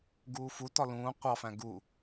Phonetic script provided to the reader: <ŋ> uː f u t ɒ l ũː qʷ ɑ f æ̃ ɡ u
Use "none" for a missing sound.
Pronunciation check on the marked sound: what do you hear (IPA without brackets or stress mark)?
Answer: ɡ